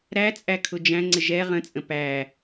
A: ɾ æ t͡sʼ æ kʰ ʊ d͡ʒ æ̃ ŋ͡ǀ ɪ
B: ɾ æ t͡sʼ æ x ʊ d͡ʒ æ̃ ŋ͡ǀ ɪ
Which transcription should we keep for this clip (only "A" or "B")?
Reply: A